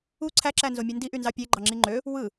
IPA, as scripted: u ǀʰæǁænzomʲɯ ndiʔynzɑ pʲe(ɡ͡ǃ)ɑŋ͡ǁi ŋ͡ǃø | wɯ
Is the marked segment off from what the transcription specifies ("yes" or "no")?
no